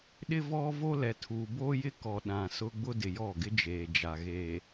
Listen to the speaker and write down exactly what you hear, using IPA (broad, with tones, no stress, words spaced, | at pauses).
ɗɪ˦vɔ˦vo˦lɛ˨ tʰuː˨boː˦jɪ˦kɔ˨ ɗã˨sʊ˦ ɡ͡bʊ˦dɪ˨jɔ˦˨ɡɪ˦ d͡ʒeː˨d͡ʒa˨ ɣeː˨